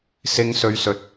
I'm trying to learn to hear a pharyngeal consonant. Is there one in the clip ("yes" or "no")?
no